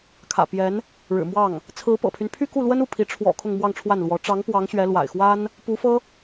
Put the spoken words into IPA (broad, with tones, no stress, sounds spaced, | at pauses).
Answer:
kʰ ä̰˨˩ p j ɛ˧˥ n | ɻ ɻ̩˨˩ m w ɑ˥˩ ŋ | t͡sʰ ɹ̩˧˥ p ɤ̰˨˩ pʰ y˦ n pʰ y˥˧ k u˥˩ l w ə˥ n u˥˩ pʰ i˧˥ ʈ͡ʂʰ w ɔ̰˨˩ kʰ ʊ˥˧ ŋ m w ɑ˥˧ ŋ ʈ͡ʂʰ w a˥˩ n l w ɔ˧˥ ʈ͡ʂ ɑ˧˥ ŋ p w ɑ˧˥ ŋ ɕ ɥ ɛ˧˥ l w a̰˨˩ ɪ̯ x w a˥ n | p u˧˥ f ɤ˥